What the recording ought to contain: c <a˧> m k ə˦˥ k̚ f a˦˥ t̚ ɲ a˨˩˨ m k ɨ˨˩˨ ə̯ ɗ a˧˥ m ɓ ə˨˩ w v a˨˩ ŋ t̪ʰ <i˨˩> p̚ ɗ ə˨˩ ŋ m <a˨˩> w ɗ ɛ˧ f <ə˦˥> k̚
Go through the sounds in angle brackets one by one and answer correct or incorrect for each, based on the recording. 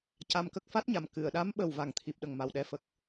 correct, correct, correct, incorrect: ə˨˩

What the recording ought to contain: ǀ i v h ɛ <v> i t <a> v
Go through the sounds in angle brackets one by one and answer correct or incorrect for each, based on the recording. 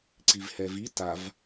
correct, correct

